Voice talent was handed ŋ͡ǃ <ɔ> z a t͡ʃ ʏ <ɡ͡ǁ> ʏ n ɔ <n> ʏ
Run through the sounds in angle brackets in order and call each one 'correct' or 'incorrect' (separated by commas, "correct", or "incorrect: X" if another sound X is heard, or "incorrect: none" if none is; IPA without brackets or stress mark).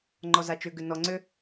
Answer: correct, incorrect: ɡ, incorrect: ŋ͡ǀ